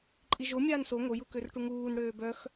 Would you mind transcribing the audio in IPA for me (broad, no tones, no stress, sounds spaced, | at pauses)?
ǃʼ i ʒ o mʲ aː n s o ŋ o j u k ø r ʈ u ŋ uː n ɽ øː b œ x